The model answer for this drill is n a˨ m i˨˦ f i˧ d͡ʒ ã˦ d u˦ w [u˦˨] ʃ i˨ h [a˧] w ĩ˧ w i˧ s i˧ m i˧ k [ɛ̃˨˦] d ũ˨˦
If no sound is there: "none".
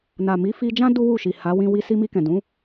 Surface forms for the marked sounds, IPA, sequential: u˦˨, a˨˦, ɛ̃˨

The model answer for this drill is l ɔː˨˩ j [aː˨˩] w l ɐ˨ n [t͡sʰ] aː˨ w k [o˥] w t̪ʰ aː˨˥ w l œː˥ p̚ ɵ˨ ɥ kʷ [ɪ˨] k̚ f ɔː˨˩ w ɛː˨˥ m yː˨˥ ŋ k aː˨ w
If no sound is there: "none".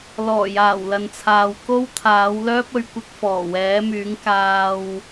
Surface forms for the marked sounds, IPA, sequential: aː˨˩, t͡sʰ, o˥, ɪ˧

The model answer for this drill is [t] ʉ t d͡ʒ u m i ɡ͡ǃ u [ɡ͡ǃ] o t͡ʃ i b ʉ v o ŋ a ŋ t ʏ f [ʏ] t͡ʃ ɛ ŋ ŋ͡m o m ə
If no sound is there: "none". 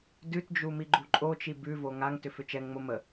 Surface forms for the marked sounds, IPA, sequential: d, ǃʼ, ʏ

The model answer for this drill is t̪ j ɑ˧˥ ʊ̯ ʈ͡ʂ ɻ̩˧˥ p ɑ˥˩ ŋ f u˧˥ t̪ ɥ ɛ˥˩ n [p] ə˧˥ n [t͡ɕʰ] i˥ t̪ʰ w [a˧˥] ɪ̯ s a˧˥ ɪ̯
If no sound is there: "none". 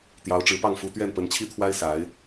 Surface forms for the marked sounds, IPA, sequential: p, t͡ɕʰ, a˥

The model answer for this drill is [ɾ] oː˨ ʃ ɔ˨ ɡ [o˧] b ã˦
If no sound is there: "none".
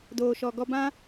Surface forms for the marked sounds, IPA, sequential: d, ɔ˧

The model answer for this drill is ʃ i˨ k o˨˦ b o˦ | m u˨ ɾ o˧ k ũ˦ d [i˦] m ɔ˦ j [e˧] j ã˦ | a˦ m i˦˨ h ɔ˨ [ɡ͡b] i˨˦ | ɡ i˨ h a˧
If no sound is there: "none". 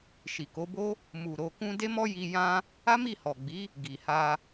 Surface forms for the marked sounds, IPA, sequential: e˦, i˧, ɡ͡b

